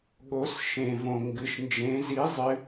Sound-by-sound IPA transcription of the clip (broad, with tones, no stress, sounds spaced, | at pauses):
ɠ o˩˧ s ʃ ẽ˩ v õ˩ ŋ ɡ ɨ˩˧ ʃ n d͡ʒ ẽ˩˧ z i˩˥ zˤ ɨ˩˧